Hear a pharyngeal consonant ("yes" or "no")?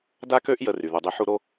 yes